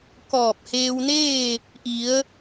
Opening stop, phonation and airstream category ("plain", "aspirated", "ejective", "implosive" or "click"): plain